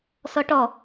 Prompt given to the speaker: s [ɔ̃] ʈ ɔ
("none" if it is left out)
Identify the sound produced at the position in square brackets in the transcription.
ɔ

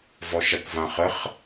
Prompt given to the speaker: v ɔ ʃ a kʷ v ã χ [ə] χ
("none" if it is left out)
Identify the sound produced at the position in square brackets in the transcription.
ə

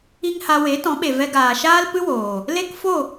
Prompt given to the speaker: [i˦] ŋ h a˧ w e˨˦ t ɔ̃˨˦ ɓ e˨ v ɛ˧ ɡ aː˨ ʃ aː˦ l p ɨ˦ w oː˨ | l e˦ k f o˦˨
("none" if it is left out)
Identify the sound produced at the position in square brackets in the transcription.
i˦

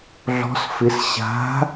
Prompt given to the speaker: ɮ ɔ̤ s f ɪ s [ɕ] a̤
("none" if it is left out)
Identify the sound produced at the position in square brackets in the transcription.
ɕ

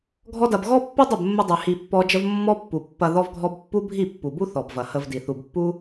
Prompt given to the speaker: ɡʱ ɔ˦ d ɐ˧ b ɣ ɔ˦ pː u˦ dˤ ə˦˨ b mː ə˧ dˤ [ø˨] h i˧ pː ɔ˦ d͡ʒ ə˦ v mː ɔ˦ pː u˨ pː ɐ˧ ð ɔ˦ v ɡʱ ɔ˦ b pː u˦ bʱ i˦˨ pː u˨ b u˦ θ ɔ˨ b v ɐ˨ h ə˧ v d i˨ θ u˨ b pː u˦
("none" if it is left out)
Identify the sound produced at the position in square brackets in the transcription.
ʉ˨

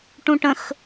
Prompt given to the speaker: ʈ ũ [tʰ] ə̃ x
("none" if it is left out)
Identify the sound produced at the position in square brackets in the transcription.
ʈ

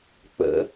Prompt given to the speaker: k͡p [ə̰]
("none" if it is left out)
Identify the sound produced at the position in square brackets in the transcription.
ə̰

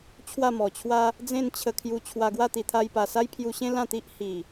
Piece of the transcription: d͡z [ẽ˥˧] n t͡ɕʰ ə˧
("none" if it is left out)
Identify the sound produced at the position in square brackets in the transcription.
ẽ˥˧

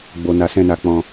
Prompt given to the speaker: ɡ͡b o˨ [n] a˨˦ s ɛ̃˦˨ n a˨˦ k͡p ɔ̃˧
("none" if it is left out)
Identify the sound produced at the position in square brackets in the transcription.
n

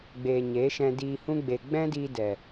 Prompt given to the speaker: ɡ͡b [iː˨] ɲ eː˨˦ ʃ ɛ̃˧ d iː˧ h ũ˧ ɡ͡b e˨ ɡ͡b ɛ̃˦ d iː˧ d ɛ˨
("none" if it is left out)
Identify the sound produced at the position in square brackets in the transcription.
eː˨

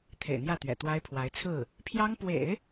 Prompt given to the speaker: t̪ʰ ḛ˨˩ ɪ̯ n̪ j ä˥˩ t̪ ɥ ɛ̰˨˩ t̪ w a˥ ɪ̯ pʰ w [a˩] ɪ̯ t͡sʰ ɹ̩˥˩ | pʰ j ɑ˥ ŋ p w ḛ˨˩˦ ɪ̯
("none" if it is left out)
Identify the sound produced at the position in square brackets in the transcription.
a˧˥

